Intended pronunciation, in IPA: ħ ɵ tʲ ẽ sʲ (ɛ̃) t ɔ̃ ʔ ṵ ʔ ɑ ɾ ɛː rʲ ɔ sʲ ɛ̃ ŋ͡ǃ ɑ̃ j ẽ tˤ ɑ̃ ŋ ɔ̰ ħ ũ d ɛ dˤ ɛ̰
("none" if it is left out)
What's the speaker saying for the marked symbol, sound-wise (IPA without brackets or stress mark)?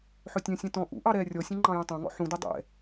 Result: ɛ̃